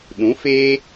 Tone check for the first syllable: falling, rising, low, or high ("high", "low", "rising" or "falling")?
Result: rising